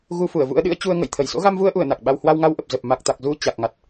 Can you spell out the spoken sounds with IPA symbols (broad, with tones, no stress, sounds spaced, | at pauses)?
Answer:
ɣ u˧ f u˧˩ ə̯ v ṵ˧˥ ə̯ ɗ ɨ̰˧˥ ə̯ t͡ɕ u˧ ə̯ ŋ ə̰˧˨ j t̪ʰ ə˧˩ j s o̰˧˥ ɣ a˧ m v u˧ ə̯ ʔ u˧˩ ə̯ n a˨˩ k̚ ɓ a˧ w h w a˧ w ŋ a˧ w ʔ ə˨˩ p̚ z ə˨˩ p̚ m a˨˩ k̚ t̪ a˨˩ k̚ z u˧ t͡ɕ a˨˩ k̚ ŋ a˨˩ t̚